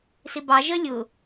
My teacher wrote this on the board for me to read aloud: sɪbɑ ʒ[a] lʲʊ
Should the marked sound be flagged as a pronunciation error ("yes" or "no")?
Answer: yes